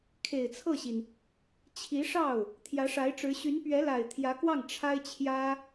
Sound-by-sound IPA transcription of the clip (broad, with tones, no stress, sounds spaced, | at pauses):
kʰ e˨˩ ɪ̯ t͡sʰ ɤ˥˩ ɕ i˩ n | t͡ɕʰ i˧˥ ʂ ɑ˥˩ ʊ̯ | t̪ʰ j ä˧˥ ʂ a˧˥ ɪ̯ ʈ͡ʂ ɻ̩˧˥ ɕ y˧˥ n p ɥ ɛ˧˥ l a˨˩ ɪ̯ t̪ʰ j ä˧˥ k w ɑ˥˩ ŋ ʈ͡ʂʰ a˥ ɪ̯ t͡ɕʰ j ä˥